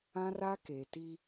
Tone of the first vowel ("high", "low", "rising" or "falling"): high